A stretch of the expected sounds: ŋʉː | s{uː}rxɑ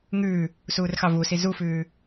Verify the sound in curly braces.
correct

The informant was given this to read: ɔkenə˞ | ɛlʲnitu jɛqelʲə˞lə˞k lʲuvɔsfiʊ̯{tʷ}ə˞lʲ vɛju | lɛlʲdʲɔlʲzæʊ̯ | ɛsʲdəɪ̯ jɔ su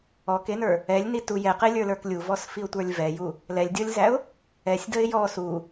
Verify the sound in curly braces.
correct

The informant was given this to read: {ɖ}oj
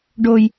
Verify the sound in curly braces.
correct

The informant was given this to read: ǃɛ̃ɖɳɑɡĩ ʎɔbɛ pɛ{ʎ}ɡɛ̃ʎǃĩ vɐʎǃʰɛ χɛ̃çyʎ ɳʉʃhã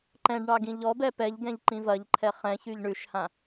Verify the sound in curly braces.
correct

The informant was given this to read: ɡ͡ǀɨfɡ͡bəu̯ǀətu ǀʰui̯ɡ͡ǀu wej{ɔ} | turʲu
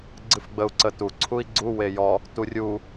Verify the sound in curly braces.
correct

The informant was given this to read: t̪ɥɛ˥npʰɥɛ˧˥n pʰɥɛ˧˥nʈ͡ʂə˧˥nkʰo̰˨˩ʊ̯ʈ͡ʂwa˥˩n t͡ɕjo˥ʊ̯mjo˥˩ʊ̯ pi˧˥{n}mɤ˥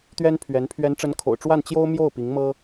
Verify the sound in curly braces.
incorrect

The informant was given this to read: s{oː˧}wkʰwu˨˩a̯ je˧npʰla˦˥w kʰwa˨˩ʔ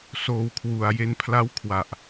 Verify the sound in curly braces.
correct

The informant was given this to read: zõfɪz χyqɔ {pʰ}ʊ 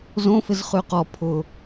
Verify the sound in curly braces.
correct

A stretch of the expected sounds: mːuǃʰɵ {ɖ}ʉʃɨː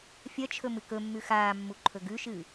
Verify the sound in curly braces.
incorrect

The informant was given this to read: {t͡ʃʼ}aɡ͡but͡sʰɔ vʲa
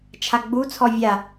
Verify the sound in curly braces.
incorrect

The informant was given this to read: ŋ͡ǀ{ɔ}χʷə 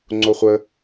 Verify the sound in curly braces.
incorrect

